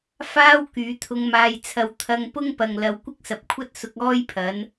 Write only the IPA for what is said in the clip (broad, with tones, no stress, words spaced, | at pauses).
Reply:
faː˥w kyː˨˥t̪ʰʊ˧ŋ maː˧jt͡sʰɐ˧w t̪ʰɐ˧ŋpʊ˥ŋpɐ˨ŋ lɐ˨w kʷɪ˥k̚sɐ˨p̚kʷʰɐ˥t̚ sʊ˨˥k̚ɔː˥jpʰɐ˨˥n